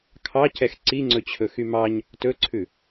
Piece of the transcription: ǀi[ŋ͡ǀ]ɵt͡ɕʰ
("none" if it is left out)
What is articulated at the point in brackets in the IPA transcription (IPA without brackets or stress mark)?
ŋ͡ǀ